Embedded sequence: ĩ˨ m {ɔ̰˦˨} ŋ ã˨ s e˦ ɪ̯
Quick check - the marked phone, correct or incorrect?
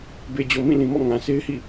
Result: correct